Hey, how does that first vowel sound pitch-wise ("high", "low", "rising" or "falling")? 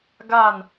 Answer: falling